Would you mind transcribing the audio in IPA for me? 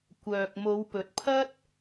kʷ œː˨ k̚ m o˨˧ w p ɵ˨ t̚ pʰ ɐ˥ t̚

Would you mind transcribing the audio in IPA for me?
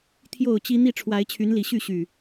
t̪ʰ j o˥˨ ʊ̯ t͡ɕ i˦ n̪ i˥˨ ʈ͡ʂʰ w a˨˦ ɪ̯ t͡ɕʰ y˨˦ n l i˨˩ ɕ y˥˨ ɕ y˨˩

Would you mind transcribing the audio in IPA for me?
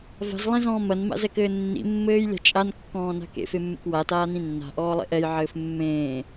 v a̤ z lˠ ẽ z ɔ̃ː m ɐ n m a̰ z ɛ k ɘː nː ḭ mː ɘː j lʲ a̤ t͡ʃʼ a n kː ɔ̃ː n a̤ k ḛ f e mː ḛ k w a t aː n ĩ nː a̤ ʔ ɔː lˠ ḛ ʔ ɛ j ʕ ɘː f mː ẽː

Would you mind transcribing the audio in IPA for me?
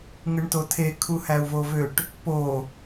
ŋ ɯ ɳ t o tʰ e kʰ u h æ u̯ v o v ø ʈ | p o

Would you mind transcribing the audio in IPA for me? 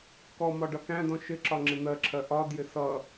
k ɔ m ɒ ɖ ʌ k æ̃ d ɔ̃ ʃ ɪ ǁ ɒ ŋ͡ǁ ɪ n̪ ɜ ǁʰ ɜ ʔ ɒ d j ɪ s ʌ

